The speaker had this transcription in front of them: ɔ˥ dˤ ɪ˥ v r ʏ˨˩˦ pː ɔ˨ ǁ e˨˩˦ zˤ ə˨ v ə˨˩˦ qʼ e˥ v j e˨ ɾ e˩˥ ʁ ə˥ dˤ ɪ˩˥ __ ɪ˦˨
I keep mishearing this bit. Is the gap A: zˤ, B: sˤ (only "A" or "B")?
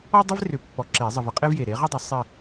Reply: B